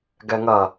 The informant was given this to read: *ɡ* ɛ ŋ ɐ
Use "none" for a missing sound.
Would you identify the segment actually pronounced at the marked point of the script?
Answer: ɡ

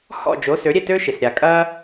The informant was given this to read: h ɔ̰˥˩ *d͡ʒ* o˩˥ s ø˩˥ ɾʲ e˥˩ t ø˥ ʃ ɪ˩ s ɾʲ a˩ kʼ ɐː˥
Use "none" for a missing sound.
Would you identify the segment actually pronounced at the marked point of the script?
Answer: d͡ʒ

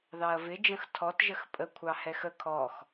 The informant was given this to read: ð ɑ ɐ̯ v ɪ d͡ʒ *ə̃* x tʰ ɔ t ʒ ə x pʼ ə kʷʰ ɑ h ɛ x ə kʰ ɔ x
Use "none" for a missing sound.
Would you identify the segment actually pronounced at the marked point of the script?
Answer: ə̃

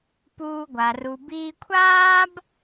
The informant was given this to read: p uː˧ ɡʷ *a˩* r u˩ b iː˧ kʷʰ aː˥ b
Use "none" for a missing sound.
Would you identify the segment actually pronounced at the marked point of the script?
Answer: a˩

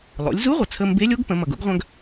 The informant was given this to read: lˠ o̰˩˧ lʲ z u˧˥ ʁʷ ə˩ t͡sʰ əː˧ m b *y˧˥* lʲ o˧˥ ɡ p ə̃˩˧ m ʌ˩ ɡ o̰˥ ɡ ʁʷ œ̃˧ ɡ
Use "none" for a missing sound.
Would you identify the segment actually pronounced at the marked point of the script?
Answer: e˧˥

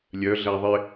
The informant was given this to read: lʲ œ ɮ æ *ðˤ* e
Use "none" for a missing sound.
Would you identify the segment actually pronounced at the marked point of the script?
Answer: ðˤ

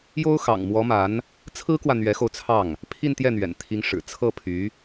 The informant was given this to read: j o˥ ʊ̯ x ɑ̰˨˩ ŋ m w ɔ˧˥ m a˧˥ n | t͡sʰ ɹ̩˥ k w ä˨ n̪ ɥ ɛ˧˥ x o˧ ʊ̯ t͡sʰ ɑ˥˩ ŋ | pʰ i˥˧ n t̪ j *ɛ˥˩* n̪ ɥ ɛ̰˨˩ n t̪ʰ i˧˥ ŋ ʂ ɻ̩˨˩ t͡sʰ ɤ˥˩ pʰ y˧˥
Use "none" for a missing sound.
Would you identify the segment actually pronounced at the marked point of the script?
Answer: ɛ˥˩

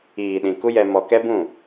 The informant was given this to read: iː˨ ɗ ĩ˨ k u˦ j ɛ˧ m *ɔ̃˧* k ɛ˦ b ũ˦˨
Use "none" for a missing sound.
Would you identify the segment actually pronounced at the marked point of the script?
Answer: ɔ˧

